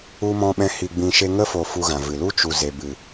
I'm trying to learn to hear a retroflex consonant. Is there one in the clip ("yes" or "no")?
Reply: no